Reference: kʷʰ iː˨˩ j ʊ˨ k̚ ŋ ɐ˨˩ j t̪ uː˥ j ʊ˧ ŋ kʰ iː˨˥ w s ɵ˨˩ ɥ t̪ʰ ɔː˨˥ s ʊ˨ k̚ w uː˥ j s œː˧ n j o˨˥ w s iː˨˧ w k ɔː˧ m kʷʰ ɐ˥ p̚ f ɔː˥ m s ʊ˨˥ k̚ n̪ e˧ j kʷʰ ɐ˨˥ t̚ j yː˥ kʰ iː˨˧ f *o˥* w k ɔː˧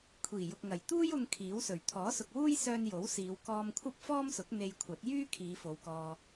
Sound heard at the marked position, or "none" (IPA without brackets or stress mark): o˨˧